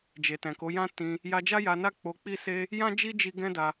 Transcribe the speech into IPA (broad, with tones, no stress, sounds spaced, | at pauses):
d͡ʒ e˨ t ɛ̃˨ k o˨˦ j ã˦ t ĩ˧ | j a˧ d͡ʒ a˦ j a˧ n a˦ k͡p o˧ k͡p i˦ s e˦ | j ã˦ d͡ʒ i˦ d͡ʒ i˧ ɡ ɛ̃˦ d a˧